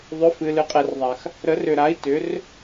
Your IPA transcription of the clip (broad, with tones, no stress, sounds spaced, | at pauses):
ðˤ ʏ˨˥ f ɨ˨ l ɨ˨ qʼ ɛ˨ r ðˤ a˨ x | ɾ ə˨˥ r ʏ˨ ɾ a˨˥ i̯ t ʏ˨˥ r